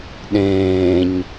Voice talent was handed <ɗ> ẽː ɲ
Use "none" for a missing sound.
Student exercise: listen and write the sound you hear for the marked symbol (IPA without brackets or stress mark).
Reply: ɗ